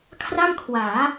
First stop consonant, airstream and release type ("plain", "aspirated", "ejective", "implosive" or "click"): aspirated